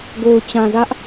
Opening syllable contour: low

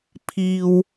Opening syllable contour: low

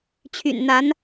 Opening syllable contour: low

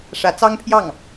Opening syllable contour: rising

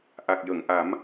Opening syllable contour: low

